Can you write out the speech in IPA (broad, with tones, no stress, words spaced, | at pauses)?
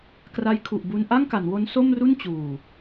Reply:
kra˧jkʰu˨˩ʔbu˧n ʔa˥˩ŋka˩˦nwo˦˥n so˥˩mru˥˩n t͡ɕuː˨˩